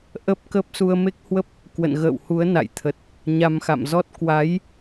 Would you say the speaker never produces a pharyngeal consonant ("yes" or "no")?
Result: yes